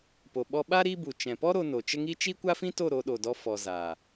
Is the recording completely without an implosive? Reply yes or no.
no